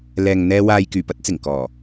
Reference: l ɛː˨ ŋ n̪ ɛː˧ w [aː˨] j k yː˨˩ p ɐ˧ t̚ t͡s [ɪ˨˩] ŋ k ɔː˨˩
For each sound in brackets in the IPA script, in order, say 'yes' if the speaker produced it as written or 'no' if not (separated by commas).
yes, yes